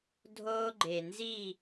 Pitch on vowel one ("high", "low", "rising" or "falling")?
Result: high